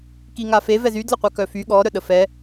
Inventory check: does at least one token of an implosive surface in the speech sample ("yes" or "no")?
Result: yes